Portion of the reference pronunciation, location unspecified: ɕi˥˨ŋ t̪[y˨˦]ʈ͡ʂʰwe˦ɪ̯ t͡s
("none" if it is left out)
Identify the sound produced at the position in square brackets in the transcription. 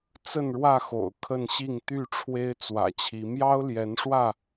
y˥˨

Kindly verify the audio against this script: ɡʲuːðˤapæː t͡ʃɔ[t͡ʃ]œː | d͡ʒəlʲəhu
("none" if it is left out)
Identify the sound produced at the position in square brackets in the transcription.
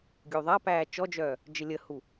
d͡ʒ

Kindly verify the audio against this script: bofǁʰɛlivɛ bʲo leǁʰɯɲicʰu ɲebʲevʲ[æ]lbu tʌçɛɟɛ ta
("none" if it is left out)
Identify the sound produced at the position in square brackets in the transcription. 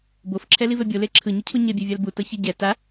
a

